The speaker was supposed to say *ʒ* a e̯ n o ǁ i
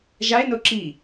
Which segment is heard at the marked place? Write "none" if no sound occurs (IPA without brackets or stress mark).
ʒ